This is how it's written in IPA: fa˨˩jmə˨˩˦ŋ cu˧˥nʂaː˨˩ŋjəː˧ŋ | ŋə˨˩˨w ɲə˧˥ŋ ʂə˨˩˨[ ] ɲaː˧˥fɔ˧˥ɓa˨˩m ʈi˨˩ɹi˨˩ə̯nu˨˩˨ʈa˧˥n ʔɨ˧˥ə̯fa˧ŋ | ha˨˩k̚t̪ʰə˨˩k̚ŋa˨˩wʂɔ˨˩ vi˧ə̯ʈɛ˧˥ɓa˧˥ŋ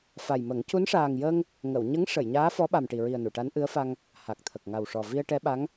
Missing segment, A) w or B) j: B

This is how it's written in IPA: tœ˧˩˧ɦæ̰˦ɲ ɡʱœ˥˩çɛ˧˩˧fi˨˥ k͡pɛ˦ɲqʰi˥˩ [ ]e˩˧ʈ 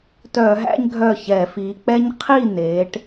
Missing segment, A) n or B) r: A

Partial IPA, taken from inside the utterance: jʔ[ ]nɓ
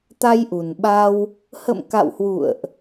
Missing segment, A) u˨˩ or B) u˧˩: A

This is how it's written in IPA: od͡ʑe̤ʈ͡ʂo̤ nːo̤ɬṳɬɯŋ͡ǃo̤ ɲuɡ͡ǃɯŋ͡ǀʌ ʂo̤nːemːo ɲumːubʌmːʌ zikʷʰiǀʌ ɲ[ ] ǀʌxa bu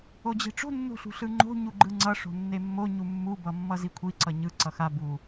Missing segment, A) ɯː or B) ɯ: B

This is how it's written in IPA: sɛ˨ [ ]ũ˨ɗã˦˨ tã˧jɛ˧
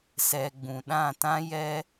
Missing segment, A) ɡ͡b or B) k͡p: A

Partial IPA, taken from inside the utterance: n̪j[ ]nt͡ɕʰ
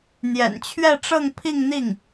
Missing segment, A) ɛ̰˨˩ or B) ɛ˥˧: A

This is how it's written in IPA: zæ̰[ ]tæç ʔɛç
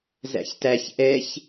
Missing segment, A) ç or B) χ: A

